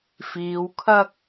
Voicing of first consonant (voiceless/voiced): voiceless